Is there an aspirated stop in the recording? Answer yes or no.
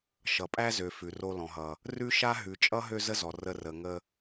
no